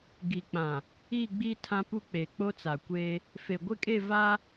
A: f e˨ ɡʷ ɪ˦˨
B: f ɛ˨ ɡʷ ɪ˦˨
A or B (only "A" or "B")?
A